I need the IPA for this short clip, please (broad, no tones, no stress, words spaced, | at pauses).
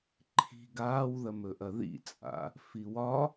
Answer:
ǃʰi̤ ɡaːwðɐmɵʔɐ ðḭt͡sʼa̰ | fiwɒ